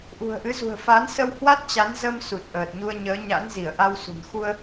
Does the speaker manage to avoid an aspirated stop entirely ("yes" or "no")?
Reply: yes